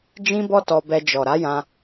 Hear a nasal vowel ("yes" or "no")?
yes